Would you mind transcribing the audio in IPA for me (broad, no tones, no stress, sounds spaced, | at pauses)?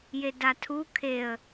j e d a tʰ u kʰ e ə̯